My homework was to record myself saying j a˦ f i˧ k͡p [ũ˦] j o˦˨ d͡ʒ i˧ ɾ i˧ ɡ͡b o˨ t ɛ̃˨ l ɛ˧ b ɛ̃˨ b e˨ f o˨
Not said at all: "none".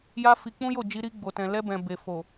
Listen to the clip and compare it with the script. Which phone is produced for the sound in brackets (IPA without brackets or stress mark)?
ũ˦